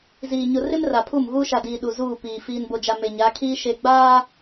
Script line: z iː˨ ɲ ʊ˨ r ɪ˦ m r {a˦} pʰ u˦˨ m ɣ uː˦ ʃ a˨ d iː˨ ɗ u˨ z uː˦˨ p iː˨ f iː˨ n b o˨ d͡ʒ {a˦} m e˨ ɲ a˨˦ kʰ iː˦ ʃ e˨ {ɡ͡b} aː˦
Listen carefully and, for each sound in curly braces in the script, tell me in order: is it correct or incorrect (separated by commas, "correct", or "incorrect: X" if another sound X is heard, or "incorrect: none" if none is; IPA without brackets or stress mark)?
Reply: incorrect: a˨, incorrect: a˨, correct